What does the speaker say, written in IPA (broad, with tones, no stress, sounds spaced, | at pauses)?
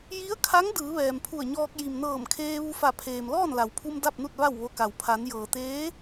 j i˧˥ ə̯ kʰ a˧˥ ŋ d ɯː˩˧ ʋ ɛː˩ m pʰ u˧˩ ə̯ ɲ ɔː˧ k̚ j i˩ m n ɤː˧˩ m kʰ eː˧ ʋ u˧ f a˧˩ pʰ eː˩ m l ɔː˥˨ n l a˩ w pʰ u˧ m d a˥˨ p̚ n u˥˨ t̚ ʋ a˥˨ w ʋ o˧ k a˩ w pʰ a˩˧ n j ɤː˩ t̪ eː˧˥